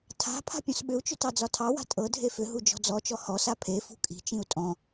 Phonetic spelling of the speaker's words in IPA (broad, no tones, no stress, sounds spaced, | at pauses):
tʰ a̤ pʰ a̤ pʲ ɔ̃ s ɓ ʏ u̯ t͡ʃ ʏ t ɑ d͡z ɒ tʰ ɑ w a̤ tʼ ɤ dʱ e f ʏ ɦ u d͡ʒ ɔ̤ d͡z ɔ t͡ʃ ɔ h ɔ s a pʰ e f ṳ kʼ i̤ t͡ʃ ĩ u̯ tʼ ɔ̃